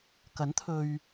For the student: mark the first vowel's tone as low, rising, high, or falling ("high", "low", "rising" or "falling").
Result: rising